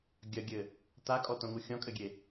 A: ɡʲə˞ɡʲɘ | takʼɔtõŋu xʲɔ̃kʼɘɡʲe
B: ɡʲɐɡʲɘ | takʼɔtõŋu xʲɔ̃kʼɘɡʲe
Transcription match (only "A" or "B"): B